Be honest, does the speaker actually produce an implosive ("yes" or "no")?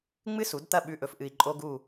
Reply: yes